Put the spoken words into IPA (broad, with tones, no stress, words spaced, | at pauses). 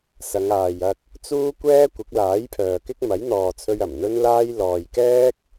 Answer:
sɐ˨˧ŋaː˨jɐ˧k̚ | t͡suː˥kʷɛː˥ kʷɪ˨˥k̚laː˨˥jpʰœː˨kɪ˥k̚ mɐ˨˥jn̪ɔː˨t͡sʰɵ˧ɥ ɐ˨˩mn̪ɵ˥nlaː˥j lɔː˨jkɛː˥k̚